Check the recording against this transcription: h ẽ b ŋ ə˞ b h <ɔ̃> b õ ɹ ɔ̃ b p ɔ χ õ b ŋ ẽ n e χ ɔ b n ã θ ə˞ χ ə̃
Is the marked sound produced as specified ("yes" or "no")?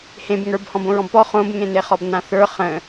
yes